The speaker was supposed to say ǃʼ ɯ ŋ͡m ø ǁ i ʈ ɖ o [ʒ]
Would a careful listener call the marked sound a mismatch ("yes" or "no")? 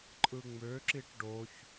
yes